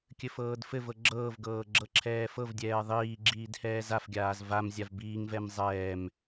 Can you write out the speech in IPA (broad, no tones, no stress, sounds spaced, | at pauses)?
kʲ ɘ f ɤː d f ɘ v ɤ ɡ͡ǁ ɤː v ɡ ɤː ɡ͡ǁ ɤ ǁʰ ɛː f ɤ v dʲ ɛː ðˤ iː ɡ͡ǁ iː d h ɛː z a f ɡʲ aː z v a m zʲ a v b iː ŋ v ɛ m zˤ ɛː m